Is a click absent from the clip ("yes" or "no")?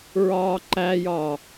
no